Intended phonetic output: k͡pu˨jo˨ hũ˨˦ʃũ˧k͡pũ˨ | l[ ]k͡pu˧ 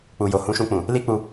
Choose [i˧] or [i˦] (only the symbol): i˦